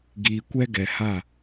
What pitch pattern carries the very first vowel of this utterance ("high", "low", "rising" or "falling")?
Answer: low